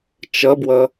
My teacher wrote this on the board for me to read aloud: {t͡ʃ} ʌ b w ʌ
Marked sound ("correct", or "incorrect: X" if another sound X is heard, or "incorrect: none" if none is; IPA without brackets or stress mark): correct